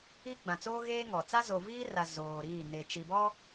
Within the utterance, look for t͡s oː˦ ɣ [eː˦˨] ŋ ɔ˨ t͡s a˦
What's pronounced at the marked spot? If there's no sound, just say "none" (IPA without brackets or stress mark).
eː˦